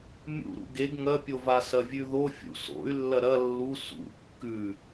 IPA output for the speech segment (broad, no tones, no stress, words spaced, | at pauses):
mʲṵɾṵ ɡeɡ ŋɐpʲovasɐ vʲʉðo fʲṵ so̰y̯lːɐ ɾɐ lːu sṵ kːʉ